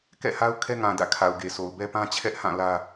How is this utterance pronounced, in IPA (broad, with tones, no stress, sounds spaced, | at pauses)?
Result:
k ɛ̰˦˨ h a˦ ʊ̯ kʰ ɛ˦ ŋ ã˨ d ä̰˦˨ kʰ a˨ ʊ̯ ɡ e˨ sʰ o˨ ʊ̯ b ɛ˦ p ã˦ t͡ɕʰ ɛ˦ ʔ h ã˦˨ l ä˦